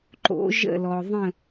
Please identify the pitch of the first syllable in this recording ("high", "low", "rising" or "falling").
rising